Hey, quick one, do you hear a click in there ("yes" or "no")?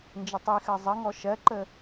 yes